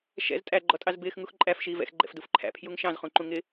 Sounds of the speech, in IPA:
ʃ ɛ̰ z tʼ æ ɡ͡ǃ ɔ tʼ ɑ z b ɪː x ŋ u x ǃʼ æ f ʃ iː v ɛ̰ x ɡ͡ǃ ɛ̰ f d u f ǃʰ æ̰ pʰ j u ŋ ʃ ɑ̃ z χ ũ ǃ ũ ŋ ɪ

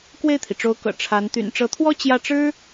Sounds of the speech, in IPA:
k w e˥˩ ɪ̯ t̪ʰ i˩ ʈ͡ʂ o˧˥ ʊ̯ k ɤ̰˨˩ ʈ͡ʂʰ a˧˥ n t̪ y̰˨˩ n ʈ͡ʂ ɤ˧˥ t̪ʰ w ɔ˥ t͡ɕ j ä˥˩ ʈ͡ʂ ɻ̩˥

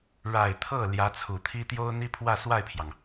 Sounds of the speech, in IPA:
ɻ a˨˩ ɪ̯ t̪ʰ ɤ˥˩ l j ä˧˥ t͡sʰ u˨˩ t̪ʰ i˥ t̪ j o˥ ʊ̯ n̪ i˥ pʰ w ä˥˧ s w a˥˩ ɪ̯ pʰ j ɑ˩ ŋ

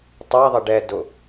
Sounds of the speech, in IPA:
tˤ a ðˤ ə ɖ ɛː d ʊ

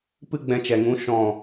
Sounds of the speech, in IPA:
p ɨ˦ ɡ͡b ɛ̃˧ t͡ʃ ɛ˨ ŋ ũ˨˦ ʃ ɔ̃˨

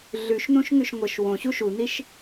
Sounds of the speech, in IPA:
ɮ ʉ ʃ n ũ ʃ ŋ ʉ ʃ ŋʷ ə ʃ w õ ɕ u ʃ u n i ʃ

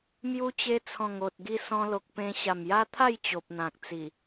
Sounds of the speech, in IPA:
m j u˧ t͡ɕ e˧ t͡sʰ ɔ̃˨˩ ŋ o˨ t̚ ɡ i˦ s ɔ̃˧ l o˨ k̚ p ẽ˧ ɕ a˨˩ m j a˦ t̪ʰ a˥˧ j t͡ɕ o˨ p̚ n̪ ã˨ k̚ t͡s i˨˩

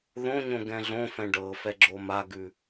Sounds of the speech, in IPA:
ð õ ɲ õ ɡ ɛ̃ ɮ õ f ɛ̃ ɖ ɤ f ɛ ɡ͡ǁ o m a ɡ ʉ

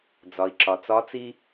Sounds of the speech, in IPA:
d͡z ɒ˩ i̯ ǁ ɒ˩ t͡s ɒ˧˥ t͡s i˥

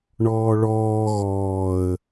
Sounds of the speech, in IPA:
ɳ ɔː ɭ ɔː ɣ ɔː ə̯

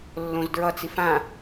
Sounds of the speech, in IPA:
lː õ z d ɹ ʌ t͡s i f ã

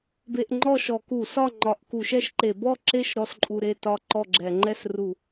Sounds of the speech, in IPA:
b e˧ ʔ ŋ͡ǃ ɔ˥˨ ʃ ɔ˧˩˧ k u˧˩˧ s ɒ˥˨ ŋ͡ǃ ɒ˧˩˧ ʔ k u˧˩˧ ʃ ɛ˥˨ ʃ ǃ e˧˩˧ b ɔ˥˨ ǁ e˥˨ ʃ ɾ ɔ˧ s ǃʼ u˧ ɾ e˥˨ t ɒ˥˨ ǃ ɔ˥˨ ɡ͡ǁ ɛ˧˩˧ ŋ͡ǃ ɛ˥˨ s r u˧˩˧

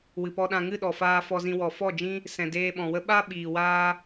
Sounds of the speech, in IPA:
w ɨ˨ p ɔ˧ ɗ ã˧ ŋ ɨ˦˨ ɗ ɔ˨ f aː˧ f ɔ˧ z ĩ˧ w ɔ˨ f ɔ˦˨ d͡ʒ ĩ˦ | s ɛ̃˨ d eː˧ ɓ ɔ̃˨ w ə˦ ɓ a˦ ɓ iː˨ w aː˦

